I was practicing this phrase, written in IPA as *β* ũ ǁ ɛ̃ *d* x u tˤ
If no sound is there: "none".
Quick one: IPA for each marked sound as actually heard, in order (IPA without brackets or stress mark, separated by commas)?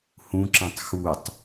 h, tˤ